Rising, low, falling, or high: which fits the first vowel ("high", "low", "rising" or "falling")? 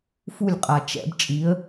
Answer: falling